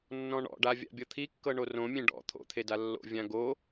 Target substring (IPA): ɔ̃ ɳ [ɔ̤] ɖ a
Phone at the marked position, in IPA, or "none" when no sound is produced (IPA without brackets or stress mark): ɔ̰